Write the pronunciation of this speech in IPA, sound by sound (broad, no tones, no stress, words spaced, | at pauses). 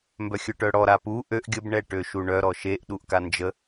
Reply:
mbœxʲœʈœɽɔ ɾapu ʔøʔ ɡʲəb ɳɛʈøʃuɳœ ɾɔʃeʔ ɗuʔkand͡ʒə